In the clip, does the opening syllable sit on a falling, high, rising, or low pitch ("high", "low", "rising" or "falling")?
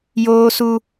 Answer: high